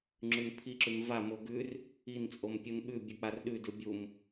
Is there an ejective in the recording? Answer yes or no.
yes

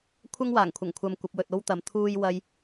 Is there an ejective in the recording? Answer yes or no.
no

